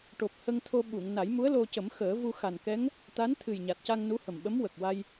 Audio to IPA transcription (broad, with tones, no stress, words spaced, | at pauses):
ʈo˨˩p̚hə˧ŋt̪ʰo˧ ɓu˨˩˨ŋ na˨˩˦jmu˧˥ə̯ lo˧cə˨˩˦m xəː˨˩˦vu˧xa˨˩nkɛ˧˥ŋ | t̪a˧˥nt̪ʰɨ˨˩jɲa˨˩t̚ca˧ŋ nu˧˥hə˨˩mɓə˧˥m wə˨˩k̚wa˧j